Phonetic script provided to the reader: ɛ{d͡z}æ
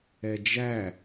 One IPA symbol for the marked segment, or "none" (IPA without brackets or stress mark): d͡ʒ